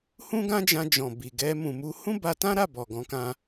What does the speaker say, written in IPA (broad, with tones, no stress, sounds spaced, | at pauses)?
h ũ˦ ɡ ã˦ d͡ʒ ã˧ d͡ʒ ɔ̃˨ b i˨ ɡ ɛ˧ m ũ˨ m u˧ h ũ˦ b a˧ t ã˦ ɾ a˦˨ b ɔ˨ ɡ ɔ̃˨˦ k ã˧